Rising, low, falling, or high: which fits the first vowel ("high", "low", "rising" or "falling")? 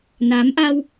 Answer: rising